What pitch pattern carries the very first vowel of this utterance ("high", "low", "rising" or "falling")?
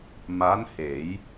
rising